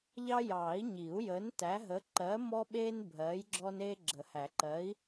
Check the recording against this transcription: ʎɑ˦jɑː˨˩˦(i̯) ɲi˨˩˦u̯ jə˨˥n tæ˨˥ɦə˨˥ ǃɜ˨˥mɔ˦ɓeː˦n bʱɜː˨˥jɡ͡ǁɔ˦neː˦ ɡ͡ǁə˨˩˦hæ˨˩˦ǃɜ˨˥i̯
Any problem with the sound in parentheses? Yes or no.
no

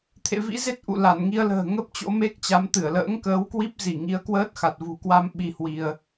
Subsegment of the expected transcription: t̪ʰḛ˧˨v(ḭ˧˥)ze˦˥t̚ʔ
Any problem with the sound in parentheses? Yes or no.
no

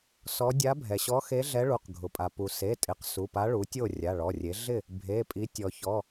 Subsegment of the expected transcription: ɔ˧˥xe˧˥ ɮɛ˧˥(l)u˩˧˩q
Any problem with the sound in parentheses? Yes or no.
yes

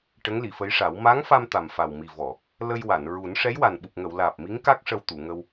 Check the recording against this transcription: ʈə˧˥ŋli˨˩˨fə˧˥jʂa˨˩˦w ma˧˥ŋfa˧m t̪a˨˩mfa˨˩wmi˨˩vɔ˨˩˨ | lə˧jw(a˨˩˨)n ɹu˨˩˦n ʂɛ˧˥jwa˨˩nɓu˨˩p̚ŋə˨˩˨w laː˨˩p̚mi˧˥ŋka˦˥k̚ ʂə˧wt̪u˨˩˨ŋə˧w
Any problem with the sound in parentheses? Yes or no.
no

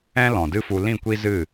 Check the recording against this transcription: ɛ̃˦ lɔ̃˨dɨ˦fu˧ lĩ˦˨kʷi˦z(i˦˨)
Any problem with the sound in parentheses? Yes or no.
yes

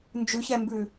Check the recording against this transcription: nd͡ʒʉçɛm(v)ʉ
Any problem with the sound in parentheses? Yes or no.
yes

